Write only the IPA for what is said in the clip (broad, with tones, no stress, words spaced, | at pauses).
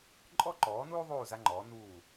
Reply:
ǃʼɔ˥ǃɔː˨˥nuː˥ðˤuː˦˨ za˥ŋ͡ǃɔː˨˥ nuː˦˨